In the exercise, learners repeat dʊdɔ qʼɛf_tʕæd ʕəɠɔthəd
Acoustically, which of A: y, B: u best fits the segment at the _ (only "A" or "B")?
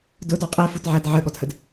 B